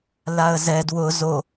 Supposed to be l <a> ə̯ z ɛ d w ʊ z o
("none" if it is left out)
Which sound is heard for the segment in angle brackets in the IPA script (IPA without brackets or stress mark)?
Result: a